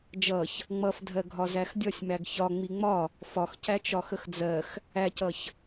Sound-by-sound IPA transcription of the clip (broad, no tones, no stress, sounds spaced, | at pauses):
d͡ʒ ʌ ç | ŋ͡m ʌ f dʱ ɜ ɡʱ ɒ z æ x dʲ ʌ sʲ m æ ɡ ç ɒ ŋ͡m i ŋ͡m ɒ | f ɒ x c æ t͡ʃ ɒ x ə x d͡z ɜ x | æ c ʌ ç